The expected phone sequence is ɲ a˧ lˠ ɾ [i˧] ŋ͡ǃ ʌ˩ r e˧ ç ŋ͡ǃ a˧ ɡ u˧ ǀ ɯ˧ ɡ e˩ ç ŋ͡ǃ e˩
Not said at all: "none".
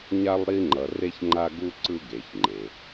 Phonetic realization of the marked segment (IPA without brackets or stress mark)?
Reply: i˧